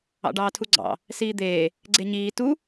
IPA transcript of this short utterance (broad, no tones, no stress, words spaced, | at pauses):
ɑ̰ɖɑːtʰuɡ͡ǀɑ̰ | siːd̪eː | ɡ͡ǀeɲiː tu